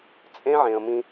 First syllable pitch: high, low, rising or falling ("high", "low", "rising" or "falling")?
high